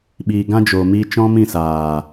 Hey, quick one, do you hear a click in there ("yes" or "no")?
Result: no